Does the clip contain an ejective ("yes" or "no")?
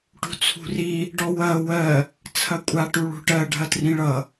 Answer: yes